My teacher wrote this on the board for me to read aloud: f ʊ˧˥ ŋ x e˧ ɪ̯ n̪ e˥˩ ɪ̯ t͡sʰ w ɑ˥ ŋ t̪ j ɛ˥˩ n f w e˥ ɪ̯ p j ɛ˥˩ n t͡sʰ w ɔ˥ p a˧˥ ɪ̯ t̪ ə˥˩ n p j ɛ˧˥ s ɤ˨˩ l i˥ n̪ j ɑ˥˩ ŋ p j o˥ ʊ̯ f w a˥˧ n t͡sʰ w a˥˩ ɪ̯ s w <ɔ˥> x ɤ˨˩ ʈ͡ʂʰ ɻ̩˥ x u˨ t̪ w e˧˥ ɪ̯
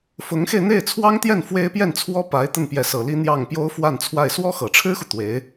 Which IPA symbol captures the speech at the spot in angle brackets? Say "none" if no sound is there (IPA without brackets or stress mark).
ɔ˥